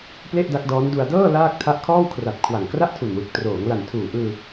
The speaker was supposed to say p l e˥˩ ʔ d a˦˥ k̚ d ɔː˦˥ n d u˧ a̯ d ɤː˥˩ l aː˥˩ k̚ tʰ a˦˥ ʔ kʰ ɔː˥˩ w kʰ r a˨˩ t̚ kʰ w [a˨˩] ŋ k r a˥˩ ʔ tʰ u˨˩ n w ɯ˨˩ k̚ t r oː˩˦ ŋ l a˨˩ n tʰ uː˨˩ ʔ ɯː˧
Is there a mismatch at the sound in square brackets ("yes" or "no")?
no